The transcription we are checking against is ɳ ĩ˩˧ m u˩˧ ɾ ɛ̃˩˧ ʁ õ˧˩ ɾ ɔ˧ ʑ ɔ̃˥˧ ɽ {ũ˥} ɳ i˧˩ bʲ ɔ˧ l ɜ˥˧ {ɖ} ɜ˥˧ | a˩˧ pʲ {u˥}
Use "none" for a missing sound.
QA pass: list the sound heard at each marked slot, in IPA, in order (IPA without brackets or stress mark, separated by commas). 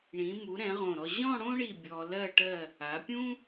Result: õ˥, ʈ, ũ˥